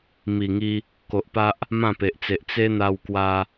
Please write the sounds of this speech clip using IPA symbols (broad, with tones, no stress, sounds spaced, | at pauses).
m i˨˩ ŋ i˧ | k o˨ ʔ p a˦ ʔ | m ã˥˧ p e˨ ʔ t͡s e˨ ʔ t͡s e˦ n̪ a˧ w k w a˧